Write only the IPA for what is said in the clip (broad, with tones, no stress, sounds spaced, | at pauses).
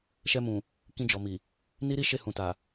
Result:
ʃ ɛ˧ m ũ˨ | k ĩ˧ d͡ʒ ɔ˨ m i˨ | n i˦ ɾ i˦ ʃ e˦˨ h ũ˨ t a˨